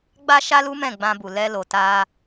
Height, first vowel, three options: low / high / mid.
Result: low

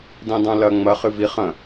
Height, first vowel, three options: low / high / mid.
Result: high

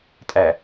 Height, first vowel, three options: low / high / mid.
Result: low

